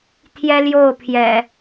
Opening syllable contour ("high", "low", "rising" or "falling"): high